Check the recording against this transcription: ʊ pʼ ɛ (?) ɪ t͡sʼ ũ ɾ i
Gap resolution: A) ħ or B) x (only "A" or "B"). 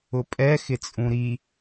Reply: B